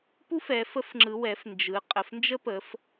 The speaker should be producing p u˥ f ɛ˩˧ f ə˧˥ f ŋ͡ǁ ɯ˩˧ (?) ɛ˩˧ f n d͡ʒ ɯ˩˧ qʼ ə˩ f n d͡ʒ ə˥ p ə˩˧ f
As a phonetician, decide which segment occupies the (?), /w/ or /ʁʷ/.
w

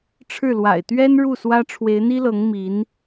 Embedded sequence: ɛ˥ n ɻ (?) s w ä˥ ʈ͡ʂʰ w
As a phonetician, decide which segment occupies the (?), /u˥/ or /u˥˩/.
u˥˩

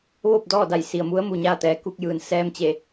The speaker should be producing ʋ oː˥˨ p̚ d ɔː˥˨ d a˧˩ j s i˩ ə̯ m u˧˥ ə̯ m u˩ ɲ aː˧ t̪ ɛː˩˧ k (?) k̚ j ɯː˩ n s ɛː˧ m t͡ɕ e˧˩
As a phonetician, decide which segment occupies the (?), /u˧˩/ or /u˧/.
u˧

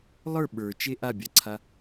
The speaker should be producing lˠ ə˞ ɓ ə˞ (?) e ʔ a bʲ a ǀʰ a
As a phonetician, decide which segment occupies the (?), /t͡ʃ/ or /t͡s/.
t͡ʃ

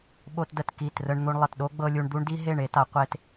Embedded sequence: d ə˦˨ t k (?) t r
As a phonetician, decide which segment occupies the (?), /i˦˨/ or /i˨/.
i˦˨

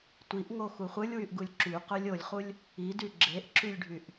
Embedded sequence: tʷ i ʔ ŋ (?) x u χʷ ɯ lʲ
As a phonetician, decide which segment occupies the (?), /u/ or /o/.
o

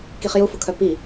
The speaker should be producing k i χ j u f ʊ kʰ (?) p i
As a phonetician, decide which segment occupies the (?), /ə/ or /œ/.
œ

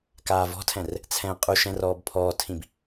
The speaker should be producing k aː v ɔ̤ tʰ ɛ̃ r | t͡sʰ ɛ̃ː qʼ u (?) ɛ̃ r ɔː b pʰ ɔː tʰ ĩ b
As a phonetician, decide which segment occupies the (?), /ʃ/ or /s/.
ʃ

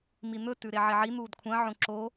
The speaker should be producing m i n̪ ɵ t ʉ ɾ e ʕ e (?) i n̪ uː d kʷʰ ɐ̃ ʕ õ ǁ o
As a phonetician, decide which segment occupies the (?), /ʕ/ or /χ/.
ʕ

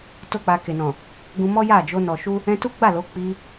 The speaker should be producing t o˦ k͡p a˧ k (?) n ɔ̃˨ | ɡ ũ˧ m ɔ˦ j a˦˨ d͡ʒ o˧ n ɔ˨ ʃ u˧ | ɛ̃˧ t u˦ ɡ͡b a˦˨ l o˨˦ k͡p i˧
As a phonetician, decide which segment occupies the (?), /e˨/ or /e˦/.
e˨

